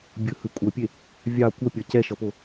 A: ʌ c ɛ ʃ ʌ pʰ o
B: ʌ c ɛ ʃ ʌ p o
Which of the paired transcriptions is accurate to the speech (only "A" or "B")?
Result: B